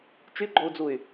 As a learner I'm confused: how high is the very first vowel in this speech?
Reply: high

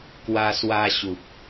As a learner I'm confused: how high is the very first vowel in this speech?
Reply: low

